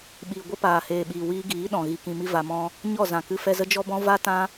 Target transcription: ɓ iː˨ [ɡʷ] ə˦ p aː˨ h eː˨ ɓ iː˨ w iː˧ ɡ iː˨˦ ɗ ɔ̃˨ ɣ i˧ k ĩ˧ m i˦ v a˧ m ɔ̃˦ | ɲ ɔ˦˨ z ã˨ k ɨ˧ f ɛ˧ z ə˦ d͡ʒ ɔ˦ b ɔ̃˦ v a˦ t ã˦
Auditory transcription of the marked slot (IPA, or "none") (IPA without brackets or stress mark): ɡʷ